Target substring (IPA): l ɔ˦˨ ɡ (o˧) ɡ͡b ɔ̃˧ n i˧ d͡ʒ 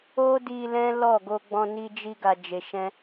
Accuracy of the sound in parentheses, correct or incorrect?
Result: correct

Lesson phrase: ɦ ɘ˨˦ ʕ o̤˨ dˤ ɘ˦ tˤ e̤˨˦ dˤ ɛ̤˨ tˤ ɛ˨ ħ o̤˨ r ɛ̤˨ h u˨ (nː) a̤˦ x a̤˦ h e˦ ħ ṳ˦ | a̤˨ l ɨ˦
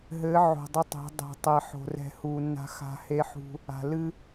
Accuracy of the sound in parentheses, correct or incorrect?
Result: correct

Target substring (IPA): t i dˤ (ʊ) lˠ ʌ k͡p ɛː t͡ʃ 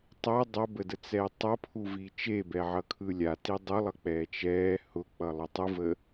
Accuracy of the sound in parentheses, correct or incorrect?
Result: correct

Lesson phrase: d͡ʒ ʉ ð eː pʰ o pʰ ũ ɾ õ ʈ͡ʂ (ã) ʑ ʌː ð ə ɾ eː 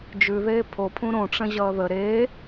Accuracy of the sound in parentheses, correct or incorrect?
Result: incorrect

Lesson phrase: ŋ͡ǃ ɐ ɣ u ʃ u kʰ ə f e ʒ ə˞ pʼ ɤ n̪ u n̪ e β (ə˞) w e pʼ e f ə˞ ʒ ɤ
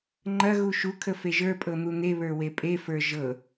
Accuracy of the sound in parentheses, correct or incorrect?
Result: correct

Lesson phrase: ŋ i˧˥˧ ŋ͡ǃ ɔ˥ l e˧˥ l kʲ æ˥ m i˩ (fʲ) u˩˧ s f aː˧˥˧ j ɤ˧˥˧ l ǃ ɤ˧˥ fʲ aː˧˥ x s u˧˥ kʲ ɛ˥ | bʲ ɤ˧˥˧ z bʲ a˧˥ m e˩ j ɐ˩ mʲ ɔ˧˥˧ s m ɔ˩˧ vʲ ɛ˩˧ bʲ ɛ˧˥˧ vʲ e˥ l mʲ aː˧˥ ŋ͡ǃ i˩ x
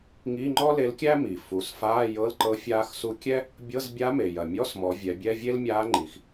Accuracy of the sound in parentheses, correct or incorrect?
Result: incorrect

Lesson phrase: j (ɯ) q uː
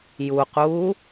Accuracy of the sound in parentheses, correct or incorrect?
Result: incorrect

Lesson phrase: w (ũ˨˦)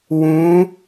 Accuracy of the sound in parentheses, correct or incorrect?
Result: correct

